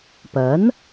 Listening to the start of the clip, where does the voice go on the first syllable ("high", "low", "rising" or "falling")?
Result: rising